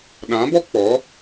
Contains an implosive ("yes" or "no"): yes